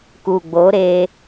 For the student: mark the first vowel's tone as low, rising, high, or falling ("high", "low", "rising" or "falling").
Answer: low